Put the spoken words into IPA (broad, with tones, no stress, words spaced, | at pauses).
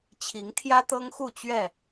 t͡ɕʰi˨˦ŋt̪ʰjä˦t̪ɤ˦ŋxu˥˨ t͡ɕɥɛ˥˨